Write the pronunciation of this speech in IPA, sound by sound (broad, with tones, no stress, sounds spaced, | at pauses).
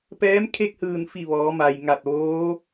p ɛː˧˥ m kʰ e˥˨ k̚ h ɯː˧˩ n f i˧˩ ʋ ɔː˩˧ m a˩ j ŋ a˧˩ t̚ ʋ oː˧˥